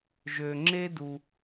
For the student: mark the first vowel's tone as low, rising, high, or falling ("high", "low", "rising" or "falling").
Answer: low